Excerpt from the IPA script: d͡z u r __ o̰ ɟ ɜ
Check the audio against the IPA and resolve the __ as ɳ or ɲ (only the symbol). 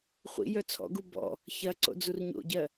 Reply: ɲ